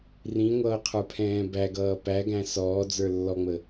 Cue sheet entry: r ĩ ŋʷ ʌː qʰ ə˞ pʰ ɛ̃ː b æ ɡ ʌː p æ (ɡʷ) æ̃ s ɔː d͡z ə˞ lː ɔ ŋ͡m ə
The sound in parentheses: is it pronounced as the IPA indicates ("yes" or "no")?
no